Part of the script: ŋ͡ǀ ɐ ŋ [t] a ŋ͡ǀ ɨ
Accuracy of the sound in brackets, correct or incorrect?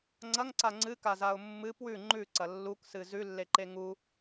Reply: incorrect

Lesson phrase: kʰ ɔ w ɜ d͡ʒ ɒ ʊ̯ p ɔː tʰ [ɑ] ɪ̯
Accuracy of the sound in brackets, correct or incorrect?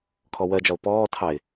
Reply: correct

